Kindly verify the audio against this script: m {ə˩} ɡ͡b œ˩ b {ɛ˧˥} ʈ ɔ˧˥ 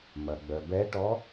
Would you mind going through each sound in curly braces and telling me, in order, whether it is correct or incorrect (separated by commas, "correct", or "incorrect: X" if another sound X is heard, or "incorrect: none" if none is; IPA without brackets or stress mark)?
incorrect: ɐ˩, correct